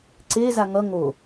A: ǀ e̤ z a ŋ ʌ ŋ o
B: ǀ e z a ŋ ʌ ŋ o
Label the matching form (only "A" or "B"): B